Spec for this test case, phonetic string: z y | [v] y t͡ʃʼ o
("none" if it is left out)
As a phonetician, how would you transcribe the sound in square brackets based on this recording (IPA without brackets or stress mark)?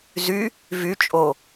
v